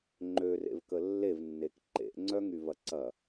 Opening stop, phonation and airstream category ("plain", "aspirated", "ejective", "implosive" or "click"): click